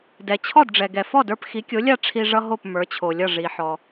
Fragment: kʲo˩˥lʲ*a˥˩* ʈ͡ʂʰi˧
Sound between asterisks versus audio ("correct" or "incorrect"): correct